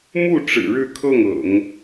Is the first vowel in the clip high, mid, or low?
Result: high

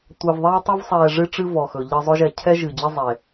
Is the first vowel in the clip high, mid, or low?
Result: mid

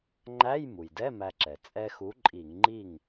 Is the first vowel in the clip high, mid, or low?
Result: low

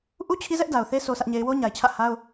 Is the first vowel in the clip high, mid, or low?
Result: high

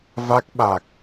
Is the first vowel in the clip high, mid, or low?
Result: low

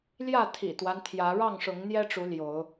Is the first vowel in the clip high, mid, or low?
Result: low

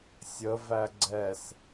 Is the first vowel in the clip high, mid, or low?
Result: mid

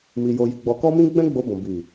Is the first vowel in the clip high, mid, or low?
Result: high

